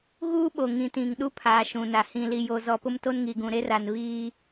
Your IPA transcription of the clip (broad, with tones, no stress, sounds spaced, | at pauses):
ɣ uː˦ ɓ o˨ ŋ ĩ˨ t ĩ˨ ŋ ɗ u˦ pʰ aː˨ ʃ ũ˨ n a˨ h ĩ˨ l i˨ j o˦ z ɔ˦ p ʊ˦ m t o˦ n ŋ i˨ ɡ ũ˨ ɾ e˦ r a˨ n β iː˦